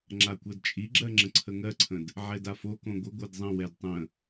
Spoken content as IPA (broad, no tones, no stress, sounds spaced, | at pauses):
ŋ͡ǁ a kʷ ɜ d t͡ʃʼ i ɡ͡ǁ ɜ ŋ͡ǁ ə̃ ǀʰ ə ŋ ɜ ǀʰ ə̃ d | ʕ ɛ d a f o k õ ɡʷ ə ɡʷ ɜ d zˤ ə̃ w ɛ d tˤ ə̃